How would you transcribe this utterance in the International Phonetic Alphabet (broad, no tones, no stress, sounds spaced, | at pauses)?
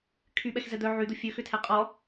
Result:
kʰ y ɓ ɛ x z ɛ d̪ œ ʕ y d̪ ʊ fʲ ø x ʏ tʰ ɛ qʼ ɔ